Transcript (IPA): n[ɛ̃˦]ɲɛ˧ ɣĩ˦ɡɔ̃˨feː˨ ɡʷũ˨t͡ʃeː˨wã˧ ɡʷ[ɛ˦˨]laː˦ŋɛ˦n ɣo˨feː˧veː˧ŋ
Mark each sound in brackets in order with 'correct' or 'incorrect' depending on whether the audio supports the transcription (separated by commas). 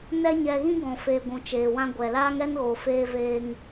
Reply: incorrect, incorrect